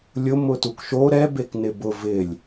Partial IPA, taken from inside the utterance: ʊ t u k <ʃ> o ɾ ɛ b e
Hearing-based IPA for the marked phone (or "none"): ʃ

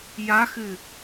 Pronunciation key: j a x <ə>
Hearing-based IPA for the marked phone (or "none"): ɨ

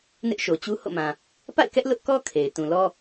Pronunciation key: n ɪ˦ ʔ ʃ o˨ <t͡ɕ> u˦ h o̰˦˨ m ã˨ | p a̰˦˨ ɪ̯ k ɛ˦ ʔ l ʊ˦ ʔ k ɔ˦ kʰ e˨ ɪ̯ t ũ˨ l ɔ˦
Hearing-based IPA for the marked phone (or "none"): t͡ɕ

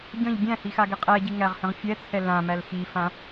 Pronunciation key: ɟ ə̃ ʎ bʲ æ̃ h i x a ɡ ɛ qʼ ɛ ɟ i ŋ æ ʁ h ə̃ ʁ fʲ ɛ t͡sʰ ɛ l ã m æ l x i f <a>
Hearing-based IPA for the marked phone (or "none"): ã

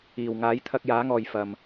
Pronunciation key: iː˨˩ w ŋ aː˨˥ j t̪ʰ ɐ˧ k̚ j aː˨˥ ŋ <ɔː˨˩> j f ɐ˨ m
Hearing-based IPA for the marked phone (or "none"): ɔː˨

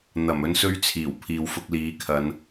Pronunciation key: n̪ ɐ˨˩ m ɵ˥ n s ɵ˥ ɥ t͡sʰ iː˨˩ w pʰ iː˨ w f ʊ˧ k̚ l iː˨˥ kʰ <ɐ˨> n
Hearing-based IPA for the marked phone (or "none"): ɐ˨˧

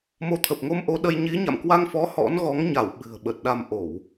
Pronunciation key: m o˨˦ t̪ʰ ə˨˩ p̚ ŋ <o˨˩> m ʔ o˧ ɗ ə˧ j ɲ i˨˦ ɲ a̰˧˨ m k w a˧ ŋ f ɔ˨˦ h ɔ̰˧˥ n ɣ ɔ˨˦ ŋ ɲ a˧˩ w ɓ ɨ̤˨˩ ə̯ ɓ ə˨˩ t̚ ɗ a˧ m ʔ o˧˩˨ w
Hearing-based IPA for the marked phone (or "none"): o˧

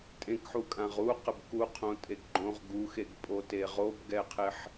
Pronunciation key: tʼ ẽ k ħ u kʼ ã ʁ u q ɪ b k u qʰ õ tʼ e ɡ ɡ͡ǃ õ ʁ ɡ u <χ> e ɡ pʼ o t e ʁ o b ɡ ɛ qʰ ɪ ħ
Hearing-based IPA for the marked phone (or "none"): x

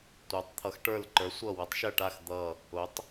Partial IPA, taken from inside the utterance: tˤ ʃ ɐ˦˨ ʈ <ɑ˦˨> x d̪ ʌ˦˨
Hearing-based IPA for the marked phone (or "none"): a˦˨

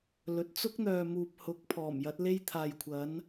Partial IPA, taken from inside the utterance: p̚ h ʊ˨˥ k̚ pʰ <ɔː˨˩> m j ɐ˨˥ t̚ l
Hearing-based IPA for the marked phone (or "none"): ɔː˨˩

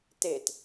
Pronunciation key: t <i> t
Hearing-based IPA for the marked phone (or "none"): e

